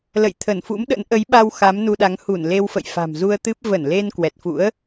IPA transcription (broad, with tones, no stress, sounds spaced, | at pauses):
l ə̰˧˨ j t̪ʰ ə˧˩ n f ṵ˧˥ m ɗ ə̰˧˥ n ʔ ə˨˦ j ɓ a˧ w x a˨˦ m n u˧ ɗ a˨˦ ŋ h u˧˩ n l e˧ w f ə̰˧˨ j f a̤˨˩ m z u˧ ə̯ t̪ ɨ˦˥ p̚ v ə˧˩ n l e˧ n k w ɛ˨˩ t̚ f ṵ˧˥ ə̯